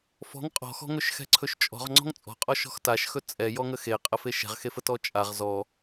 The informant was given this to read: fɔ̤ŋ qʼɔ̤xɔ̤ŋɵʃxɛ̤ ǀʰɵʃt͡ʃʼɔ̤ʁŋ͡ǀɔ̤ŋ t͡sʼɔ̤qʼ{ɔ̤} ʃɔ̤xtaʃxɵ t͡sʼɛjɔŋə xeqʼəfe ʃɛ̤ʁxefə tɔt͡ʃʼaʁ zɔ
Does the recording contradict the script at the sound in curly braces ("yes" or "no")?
yes